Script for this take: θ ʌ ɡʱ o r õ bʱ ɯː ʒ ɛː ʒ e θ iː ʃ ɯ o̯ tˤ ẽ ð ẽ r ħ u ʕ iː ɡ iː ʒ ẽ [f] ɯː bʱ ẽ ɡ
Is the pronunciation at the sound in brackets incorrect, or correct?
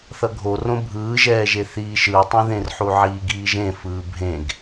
correct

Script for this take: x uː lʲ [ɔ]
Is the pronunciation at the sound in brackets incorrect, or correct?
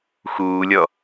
correct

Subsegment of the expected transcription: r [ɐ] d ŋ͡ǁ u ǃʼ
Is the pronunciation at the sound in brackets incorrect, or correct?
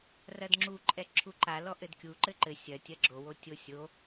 correct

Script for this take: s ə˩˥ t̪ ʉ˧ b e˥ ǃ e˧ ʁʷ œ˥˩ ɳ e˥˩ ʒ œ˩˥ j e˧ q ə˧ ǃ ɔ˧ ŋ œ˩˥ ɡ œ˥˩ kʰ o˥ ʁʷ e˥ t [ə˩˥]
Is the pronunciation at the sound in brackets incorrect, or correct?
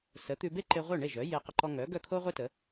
correct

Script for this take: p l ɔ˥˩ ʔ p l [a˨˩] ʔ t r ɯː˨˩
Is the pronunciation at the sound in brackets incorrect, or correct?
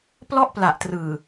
correct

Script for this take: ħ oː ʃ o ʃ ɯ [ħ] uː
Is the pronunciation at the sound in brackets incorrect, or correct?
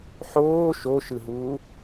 incorrect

